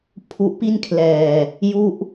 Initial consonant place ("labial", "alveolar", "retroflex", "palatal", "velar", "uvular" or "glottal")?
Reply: labial